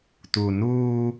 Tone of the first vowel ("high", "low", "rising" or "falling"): low